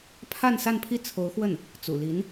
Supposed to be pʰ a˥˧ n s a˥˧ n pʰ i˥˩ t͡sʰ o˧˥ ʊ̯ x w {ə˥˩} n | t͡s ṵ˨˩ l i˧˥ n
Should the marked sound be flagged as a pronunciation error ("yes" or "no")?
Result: no